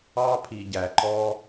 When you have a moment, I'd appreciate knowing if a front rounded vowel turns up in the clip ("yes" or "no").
no